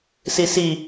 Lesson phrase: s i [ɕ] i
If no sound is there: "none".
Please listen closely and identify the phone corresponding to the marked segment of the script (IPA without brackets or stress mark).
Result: s